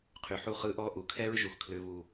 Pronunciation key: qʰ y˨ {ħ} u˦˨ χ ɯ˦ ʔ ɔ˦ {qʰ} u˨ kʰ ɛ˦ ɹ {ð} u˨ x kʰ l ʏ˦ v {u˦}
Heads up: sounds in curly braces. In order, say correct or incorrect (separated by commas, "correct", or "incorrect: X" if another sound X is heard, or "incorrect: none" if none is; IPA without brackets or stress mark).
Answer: correct, incorrect: ʔ, incorrect: ʒ, correct